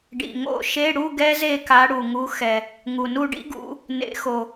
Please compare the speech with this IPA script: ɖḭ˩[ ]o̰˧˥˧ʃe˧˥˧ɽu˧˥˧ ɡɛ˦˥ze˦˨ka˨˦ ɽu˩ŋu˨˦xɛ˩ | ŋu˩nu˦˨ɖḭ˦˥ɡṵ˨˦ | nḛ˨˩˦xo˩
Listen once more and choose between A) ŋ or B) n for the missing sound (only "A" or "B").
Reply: A